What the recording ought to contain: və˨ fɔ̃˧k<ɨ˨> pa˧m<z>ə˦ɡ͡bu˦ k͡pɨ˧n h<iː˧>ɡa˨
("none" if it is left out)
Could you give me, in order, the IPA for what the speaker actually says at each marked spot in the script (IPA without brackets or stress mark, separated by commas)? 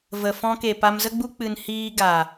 e˨, z, iː˧